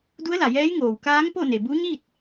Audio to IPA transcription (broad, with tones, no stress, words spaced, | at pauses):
du˧˥ə̯la˩jɛː˧˥j ŋoː˩w kaː˧˥ŋ po˥˨ne˩ bu˧˥ɲi˥˨t̚